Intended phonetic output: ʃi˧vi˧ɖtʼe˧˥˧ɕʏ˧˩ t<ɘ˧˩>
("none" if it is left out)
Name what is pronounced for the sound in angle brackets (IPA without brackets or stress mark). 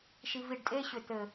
ɘ˧˩